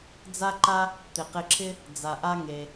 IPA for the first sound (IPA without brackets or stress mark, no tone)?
d͡z